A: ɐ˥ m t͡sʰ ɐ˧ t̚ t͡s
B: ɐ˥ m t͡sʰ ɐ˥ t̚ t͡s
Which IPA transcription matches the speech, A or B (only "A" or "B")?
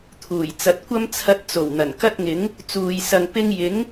A